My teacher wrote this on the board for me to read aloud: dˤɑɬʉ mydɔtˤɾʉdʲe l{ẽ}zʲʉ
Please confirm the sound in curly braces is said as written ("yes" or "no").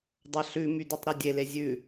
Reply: no